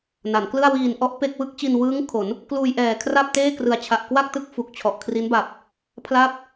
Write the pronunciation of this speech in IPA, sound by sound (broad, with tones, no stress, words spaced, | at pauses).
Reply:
na˩˦nklɯ˥˩a̯ wiː˨˩n ʔɔ˦˥ʔ pe˥˩k̚ wɯ˥˩k̚t͡ɕi˧nwɯː˦˥ŋ kʰo˩˦n | kluː˧jʔɛː˨˩ kʰra˥˩p̚teː˥˩krɯ˨˩a̯t͡ɕʰa˨˩ʔ kwa˥˩k̚tɯ˦˥k̚ fu˨˩k̚t͡ɕʰɔ˨˩ʔkʰri˦˥nba˨˩p̚ | pʰla˥˩p̚